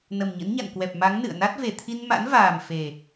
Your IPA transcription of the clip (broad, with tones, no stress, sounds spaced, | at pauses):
n ə˨˩ m ɲ ə̰˧˥ n ɲ a̰˧˨ n k w ɛ˨˩ p̚ m a˨˦ ŋ n ɨ̰˧˨ ə̯ n a˦˥ t̚ v e˧˩ t̪ʰ i˧ n m a̰˧˥ n v aː˨˩ m f e˨˩